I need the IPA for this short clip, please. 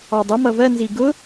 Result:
ɑdˤə mʌvɜ nziɡʊ

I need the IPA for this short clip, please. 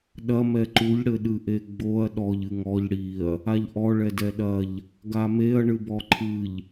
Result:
ɗɐ mɛǃuʎ ɽɘɗɨʔeɡ͡boɐ̯ ɗɔʎ ɨŋɔʎ ɽiɐ̯ | aʎʔɔ ɭɛdɛɗɐʎ | ɡameɐ̯ ɳɨbɔǃʰɨʎ

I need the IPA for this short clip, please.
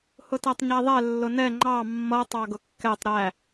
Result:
hʊtætˤɲæðˤɛ lːʊnɛ ŋ͡ǃɑ mːʌ tˤɑɡʊkːɛtˤ ɾæ

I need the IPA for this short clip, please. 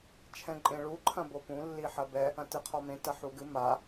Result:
t͡ʃʰɛ̃ǃʼẽɭu ǃʰɐ̃bopũ lːiħɐbɛ | ɐ̃tɨqʰɔmẽ tɐħuɡɨ ma

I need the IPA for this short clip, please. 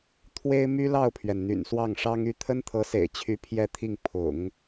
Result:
t̪ʰwe˥ɪ̯my˥lɑ˥˩ʊ̯pʰɥɛ˩n n̪y̰˨˩nswɑ˥˩ŋʂɑ˥ŋ y˥ t̪ʰə˥nt̪ʰɤ˧˥sḛ˨˩ɪ̯t͡ɕʰy˧˥ pʰjɛ˥˧t̪ʰi˥˩ŋ pʰʊ̰˨˩˦ŋ

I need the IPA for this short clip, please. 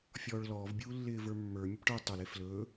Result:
fʲɔːɭlɔːv bʲuːlːɪːvə˞mːə˞ mʲɵpʈə˞ tˤɵl eflɵː

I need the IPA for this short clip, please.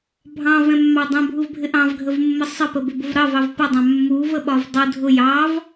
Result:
bʱɑ̃vɛ̃mːɑ dˤɛ̃bʱuvbʱɪ ʔɑ̃vɡʱəvmːə sˤəpəbɪbʊv ɾɑvɑv pədˤɑ̃ mːuvəɓɒv dˤu dʱʊ jɑv

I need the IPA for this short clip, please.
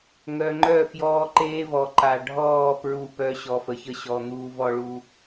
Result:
ŋœ˨ŋ͡ǃœ˦˨ fjɔː˦ǃeː˦vɔ˨ ǃa˨ɖʱɔː˦˨ pɹu˦˨pœ˦ ɕɔ˨fə˨çə˦ɕɔ˨ n̪uː˦vɔ˦ɭu˦

